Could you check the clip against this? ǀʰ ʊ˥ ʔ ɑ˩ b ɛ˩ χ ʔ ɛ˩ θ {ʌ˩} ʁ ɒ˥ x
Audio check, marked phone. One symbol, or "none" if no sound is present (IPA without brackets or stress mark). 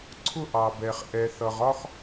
ʌ˩